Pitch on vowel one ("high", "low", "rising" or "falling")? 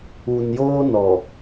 low